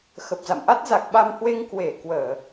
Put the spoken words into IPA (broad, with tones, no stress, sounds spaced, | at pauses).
x ə˨˩ p̚ z a̰˧˨ m ʔ a˦˥ t̚ z a˨˩ k̚ ɓ a˧ m h w e˧ ŋ k w e˧˩ k w əː˧˩˨